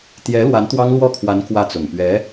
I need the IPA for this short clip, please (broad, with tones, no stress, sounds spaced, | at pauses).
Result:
t̪ j ɛ˧˥ l w a˧˥ n t̪ w ɑ˥ ŋ l w ɔ˥˩ kʰ w a˧˥ n k w ä˥˩ t͡s ʊ˨˩ ŋ p ɥ ɛ˧˥